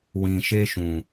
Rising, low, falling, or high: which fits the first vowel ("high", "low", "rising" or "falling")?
low